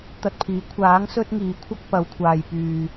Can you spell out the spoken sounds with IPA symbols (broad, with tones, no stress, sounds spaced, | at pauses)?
t̪ ɐ˧ t̚ pʰ iː˨˥ kʷʰ aː˨˥ ŋ s ɵ˥ t̚ ŋ iː˨ kʷʰ ɐ˥ k̚ p ɐ˨˧ w kʷʰ aː˨ j p yː˨